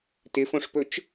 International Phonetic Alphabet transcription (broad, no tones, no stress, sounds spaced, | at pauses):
t ɪ f õ ʂ p ɵ t͡ʃ